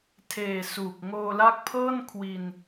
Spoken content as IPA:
tʰ eː˨˩ s uː˨˩ k̚ ŋ oː˧ l a˦˥ k̚ pʰ ɤː˥˩ n kʰ w i˧ n

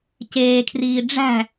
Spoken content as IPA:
c eː kʰ r iː ɖ͡ʐ æ̤

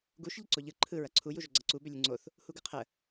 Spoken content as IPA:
ɡ u ʃ ʎ ə ǀ o ʎ ɯ ǃʰ ɯ ɹ ɐ ǀʰ u j u ʒ o ɡ͡ǀ ɐ ǀ u b ʏ lʲ ɯ ŋ͡ǀ o θ | h u ɡ ɯ qʰ ə

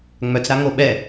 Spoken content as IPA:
ŋ͡m œ t͡s ɾ a ŋ o ɓ ɛ

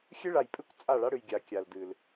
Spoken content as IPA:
xʲ ɨ˦ ɭ a˨ j pʼ ɨ˦ kʷ t͡sʼ a˦˨ ɭ a˦ ɽ ɨ˨ j ɡʲ a˨ kʲ a˨ l d ɨ˨ l

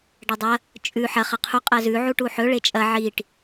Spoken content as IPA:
ɖ ɐ dˤ ɐ | t͡ʃʼ ʉ ħ ɐ χ ɐ qʰ u qʼ ɐ z ʉ ʕ u ʈ u ħ ɵ ɭ e t͡ʃʼ ɐ ʕ i ʈ

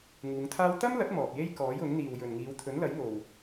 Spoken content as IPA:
ŋ uː˨˧ ŋ t̪ʰ aː˥ w t̪ ɐ˥ m l ɐ˨˥ t̚ m ɔː˨ p̚ j e˥ j k ɔː˨˥ j ʊ˨˥ ŋ n̪ iː˨ w j ɵ˨ n ŋ iː˨˧ w t̪ʰ ɵ˨˥ n l ɐ˨˥ j ŋ o˨ w

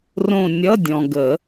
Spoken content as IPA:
r õ˦˨ nʲ ʌ˧˥˧ dʲ ɔ̃˨ ɡ ə˨˩˦

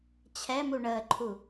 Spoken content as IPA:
t͡ɕʰ ɛ m u ɳ əː ǃʰ u

